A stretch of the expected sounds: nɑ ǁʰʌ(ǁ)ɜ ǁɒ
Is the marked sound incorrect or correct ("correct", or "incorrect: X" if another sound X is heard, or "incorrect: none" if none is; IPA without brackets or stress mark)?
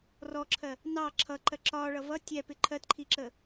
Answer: incorrect: ǃ